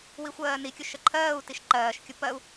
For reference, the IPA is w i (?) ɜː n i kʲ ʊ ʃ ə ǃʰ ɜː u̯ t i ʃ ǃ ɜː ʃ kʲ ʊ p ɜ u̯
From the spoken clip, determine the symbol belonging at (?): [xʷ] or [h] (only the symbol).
xʷ